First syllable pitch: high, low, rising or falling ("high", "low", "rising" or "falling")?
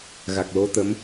low